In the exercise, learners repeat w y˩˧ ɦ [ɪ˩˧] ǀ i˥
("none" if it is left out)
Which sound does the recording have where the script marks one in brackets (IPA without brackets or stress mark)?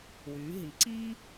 i˩˧